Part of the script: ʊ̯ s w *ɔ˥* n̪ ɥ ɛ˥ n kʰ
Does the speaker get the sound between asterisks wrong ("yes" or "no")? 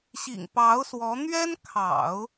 yes